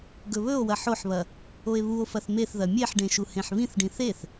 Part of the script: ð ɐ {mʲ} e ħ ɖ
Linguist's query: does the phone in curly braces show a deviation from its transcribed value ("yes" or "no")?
no